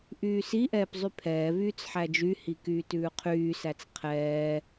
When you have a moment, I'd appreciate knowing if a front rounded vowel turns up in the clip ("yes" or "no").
yes